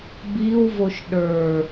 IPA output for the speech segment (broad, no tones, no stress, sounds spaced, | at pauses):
b i w v o ʃ ɗ ə˞